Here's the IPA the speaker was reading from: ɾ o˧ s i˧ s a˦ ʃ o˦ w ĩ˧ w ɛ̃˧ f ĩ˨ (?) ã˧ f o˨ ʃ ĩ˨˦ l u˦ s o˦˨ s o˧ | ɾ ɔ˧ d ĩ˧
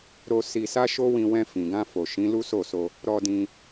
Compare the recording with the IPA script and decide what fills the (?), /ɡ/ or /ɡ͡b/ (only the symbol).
ɡ